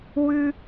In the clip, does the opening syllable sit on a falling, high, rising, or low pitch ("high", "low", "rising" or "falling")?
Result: high